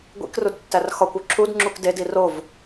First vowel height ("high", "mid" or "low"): high